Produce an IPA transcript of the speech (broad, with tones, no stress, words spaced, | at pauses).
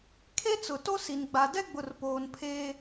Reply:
kʰe˦t͡sʊ˨ to˦si˨nɡ͡ba˨ dɛ˦ɡ͡bʊ˨rpoː˨n pʰeː˦